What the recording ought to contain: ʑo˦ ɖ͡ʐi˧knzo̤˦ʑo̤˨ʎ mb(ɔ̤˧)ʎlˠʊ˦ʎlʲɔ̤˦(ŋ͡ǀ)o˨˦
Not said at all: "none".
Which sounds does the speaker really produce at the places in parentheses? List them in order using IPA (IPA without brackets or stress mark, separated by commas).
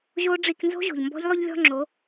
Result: ɔ̤˦, ŋ͡ǁ